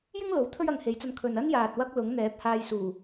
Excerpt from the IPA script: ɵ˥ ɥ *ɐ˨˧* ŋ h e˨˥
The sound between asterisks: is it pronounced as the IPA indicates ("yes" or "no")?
yes